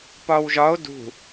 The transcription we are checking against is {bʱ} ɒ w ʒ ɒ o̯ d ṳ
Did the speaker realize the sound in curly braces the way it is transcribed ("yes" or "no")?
no